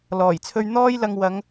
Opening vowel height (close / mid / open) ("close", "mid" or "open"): mid